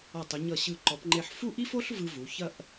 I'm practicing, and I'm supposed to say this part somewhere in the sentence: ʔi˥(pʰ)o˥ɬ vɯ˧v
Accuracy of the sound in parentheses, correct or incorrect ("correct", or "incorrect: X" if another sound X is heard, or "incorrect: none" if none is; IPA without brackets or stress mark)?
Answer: incorrect: f